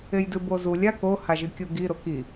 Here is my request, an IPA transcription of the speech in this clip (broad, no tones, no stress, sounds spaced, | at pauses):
e j d ɨ b o z u lʲ a k o h a ʒ ɨ kʲ u ɡ i ɾ o k i